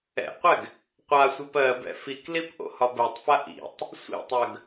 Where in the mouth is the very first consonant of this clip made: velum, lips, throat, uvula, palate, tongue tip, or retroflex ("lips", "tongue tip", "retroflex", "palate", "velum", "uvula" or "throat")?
uvula